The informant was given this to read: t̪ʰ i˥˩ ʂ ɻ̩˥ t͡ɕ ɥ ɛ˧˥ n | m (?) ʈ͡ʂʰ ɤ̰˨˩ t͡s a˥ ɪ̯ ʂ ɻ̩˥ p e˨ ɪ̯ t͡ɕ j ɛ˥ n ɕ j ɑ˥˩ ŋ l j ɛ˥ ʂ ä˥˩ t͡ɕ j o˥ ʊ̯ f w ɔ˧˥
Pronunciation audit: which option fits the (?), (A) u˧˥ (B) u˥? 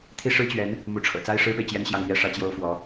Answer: A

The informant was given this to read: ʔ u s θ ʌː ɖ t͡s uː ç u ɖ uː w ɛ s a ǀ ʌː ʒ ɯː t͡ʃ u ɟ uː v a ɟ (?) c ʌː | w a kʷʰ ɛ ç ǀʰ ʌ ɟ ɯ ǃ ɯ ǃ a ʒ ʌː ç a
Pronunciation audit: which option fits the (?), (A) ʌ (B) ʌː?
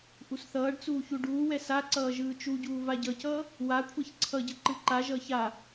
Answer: A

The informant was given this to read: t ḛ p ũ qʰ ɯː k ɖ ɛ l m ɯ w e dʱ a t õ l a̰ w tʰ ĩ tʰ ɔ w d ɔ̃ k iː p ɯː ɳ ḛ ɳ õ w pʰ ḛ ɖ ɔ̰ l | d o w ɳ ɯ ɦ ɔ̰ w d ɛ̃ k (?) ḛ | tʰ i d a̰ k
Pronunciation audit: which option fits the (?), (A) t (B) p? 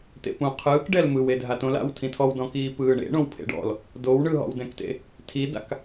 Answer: A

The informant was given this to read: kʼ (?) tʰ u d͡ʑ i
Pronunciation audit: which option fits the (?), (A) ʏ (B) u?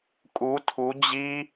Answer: B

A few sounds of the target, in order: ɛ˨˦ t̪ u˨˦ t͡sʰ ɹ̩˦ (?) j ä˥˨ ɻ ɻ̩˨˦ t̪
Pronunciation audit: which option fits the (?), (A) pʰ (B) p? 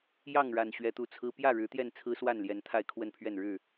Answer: B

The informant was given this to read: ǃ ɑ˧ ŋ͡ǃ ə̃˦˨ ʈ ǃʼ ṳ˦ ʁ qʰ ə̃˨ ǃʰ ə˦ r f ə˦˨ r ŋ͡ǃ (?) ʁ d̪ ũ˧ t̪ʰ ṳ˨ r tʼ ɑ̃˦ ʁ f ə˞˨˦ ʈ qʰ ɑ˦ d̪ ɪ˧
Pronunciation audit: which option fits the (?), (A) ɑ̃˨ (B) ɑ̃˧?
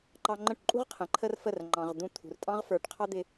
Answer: A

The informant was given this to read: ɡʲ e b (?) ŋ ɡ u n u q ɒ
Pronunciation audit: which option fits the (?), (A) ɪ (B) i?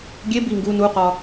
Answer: B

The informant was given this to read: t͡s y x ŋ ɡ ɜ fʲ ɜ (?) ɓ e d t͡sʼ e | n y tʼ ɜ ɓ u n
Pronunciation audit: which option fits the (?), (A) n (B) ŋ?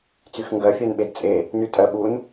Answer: A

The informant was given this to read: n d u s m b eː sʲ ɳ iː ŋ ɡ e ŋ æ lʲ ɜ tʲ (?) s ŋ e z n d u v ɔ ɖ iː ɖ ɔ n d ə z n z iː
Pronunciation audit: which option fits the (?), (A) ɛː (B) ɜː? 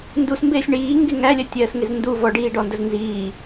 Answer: B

